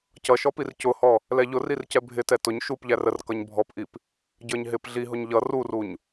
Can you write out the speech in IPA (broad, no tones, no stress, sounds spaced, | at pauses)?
c ʌ ʃ ɔ p i r c ʊ h ɔ | l ɛ ʎ ʊ r i r c ɛ bʱ ɪ t ɛ t ʊ ɲ ʃ u p ʎ æ r ə r k ʌ ɲ bʱ ɔ p ʔ i p | ɟ ə˞ ɲ ɦ ɪ p ɮ i ɦ ʊ ɲ ʎ ʌ r u r u ɲ